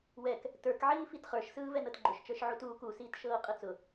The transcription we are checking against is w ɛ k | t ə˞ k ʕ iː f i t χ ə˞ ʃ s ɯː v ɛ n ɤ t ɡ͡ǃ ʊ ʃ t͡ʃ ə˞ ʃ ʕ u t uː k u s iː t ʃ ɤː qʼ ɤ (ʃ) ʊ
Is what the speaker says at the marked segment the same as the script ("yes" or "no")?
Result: no